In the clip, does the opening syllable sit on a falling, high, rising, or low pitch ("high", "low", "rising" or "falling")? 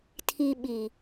low